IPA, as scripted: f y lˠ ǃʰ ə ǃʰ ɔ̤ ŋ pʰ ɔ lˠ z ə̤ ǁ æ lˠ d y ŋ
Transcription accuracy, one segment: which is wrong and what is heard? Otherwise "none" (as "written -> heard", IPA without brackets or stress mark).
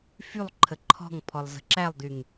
none